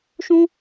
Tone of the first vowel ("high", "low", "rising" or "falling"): high